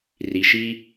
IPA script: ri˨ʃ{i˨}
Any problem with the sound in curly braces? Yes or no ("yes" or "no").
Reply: yes